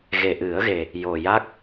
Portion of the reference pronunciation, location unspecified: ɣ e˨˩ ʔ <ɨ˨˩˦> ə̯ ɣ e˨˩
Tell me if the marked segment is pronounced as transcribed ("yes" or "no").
yes